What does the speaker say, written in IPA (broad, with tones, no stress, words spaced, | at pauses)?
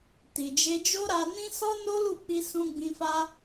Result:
ti˨d͡ʒe˧d͡ʒo˦ ɾa˧nĩ˦ sɔ˦no˦lu˦˨k͡pi˧ sũ˧ɡ͡bĩ˧fa˦